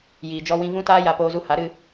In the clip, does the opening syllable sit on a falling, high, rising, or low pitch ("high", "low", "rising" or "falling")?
low